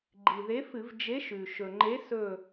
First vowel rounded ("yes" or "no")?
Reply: no